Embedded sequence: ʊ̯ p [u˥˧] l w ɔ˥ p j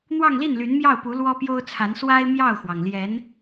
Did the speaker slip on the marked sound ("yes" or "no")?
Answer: yes